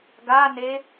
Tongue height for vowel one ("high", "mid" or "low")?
low